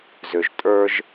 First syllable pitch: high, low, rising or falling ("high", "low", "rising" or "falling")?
low